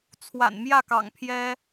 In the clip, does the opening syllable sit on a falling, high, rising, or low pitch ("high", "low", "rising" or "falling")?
low